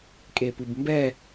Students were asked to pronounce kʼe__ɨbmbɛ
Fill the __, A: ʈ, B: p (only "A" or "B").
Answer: B